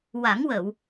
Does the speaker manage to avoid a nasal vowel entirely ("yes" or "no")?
yes